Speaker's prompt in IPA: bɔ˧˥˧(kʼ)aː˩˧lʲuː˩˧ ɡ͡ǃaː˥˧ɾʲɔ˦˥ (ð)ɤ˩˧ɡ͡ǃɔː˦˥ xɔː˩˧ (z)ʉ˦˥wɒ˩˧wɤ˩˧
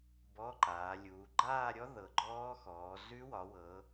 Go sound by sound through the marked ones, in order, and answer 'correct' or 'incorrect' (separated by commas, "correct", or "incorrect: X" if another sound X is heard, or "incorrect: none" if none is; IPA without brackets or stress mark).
incorrect: ǃ, correct, correct